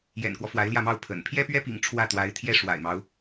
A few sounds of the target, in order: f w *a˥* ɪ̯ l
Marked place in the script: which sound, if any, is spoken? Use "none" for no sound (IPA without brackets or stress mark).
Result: a˧˥